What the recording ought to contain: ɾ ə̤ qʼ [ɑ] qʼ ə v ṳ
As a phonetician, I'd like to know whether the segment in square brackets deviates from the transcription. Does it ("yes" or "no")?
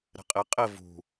yes